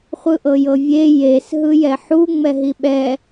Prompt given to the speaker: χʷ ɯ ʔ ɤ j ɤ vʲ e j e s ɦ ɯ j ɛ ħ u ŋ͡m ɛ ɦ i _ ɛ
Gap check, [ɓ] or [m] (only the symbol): ɓ